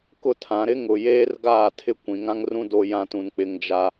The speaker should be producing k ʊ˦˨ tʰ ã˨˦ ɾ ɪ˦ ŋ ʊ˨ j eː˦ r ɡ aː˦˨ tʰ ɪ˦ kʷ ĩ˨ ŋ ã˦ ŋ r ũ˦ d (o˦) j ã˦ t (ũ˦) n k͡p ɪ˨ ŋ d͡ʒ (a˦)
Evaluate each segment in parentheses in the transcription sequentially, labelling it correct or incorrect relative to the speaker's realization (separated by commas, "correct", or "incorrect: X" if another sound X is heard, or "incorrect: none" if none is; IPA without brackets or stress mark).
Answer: correct, incorrect: ũ˨, incorrect: a˨